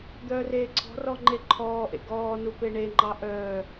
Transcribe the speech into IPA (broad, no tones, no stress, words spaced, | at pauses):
d̪œːreːǀʰɔ̤rɔ ŋ͡ǃeǃʰɔːʔḛ ɡɔːnu peɳeŋ͡ǃɑ ʔœː